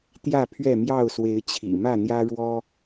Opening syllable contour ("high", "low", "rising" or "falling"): falling